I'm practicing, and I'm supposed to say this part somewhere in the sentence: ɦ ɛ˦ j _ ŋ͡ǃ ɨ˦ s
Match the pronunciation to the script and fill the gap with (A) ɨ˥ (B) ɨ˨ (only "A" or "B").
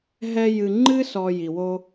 B